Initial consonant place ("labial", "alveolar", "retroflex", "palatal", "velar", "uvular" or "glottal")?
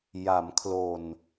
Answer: palatal